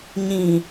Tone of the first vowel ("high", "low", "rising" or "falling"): low